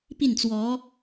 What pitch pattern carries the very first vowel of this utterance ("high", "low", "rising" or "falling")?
falling